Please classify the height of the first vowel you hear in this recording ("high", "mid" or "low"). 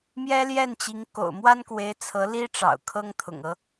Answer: mid